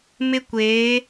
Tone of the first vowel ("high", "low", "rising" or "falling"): high